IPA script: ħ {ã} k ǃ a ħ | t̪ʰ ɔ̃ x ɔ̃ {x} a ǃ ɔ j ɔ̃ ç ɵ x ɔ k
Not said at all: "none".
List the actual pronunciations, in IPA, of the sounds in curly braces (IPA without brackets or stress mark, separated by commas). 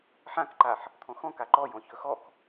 ã, k